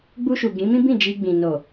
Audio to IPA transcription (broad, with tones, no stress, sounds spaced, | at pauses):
ɡ͡b u˧ ʃ u˨ ɡ ĩ˨˦ m ĩ˦ b ĩ˦˨ d͡ʒ i˧ ɡ͡b ĩ˨ n o˨